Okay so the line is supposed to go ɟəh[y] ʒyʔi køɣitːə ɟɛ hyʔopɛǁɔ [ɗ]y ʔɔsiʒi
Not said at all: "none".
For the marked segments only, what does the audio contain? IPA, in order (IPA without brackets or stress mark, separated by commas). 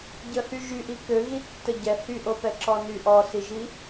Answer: y, n